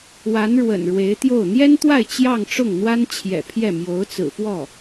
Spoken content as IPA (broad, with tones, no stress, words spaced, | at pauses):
wa˧˥nɻwə̰˨˩n ɻwe˧˥ɪ̯t̪jo˥˩ʊ̯ n̪jɛ˥nt̪wa˥˧ɪ̯ t͡ɕjɑ˥˧ŋʈ͡ʂʊ˥˩ŋn̪wa˥n t͡ɕʰjɛ̰˨˩pʰjɛ˥˩ mjo˧˥ʊ̯t͡sɹ̩˨˩fwɔ˥˩